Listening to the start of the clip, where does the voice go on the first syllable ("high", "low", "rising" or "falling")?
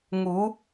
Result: rising